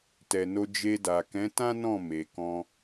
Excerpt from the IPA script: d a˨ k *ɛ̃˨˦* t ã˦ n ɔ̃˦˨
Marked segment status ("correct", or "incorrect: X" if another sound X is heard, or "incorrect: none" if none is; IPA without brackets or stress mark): correct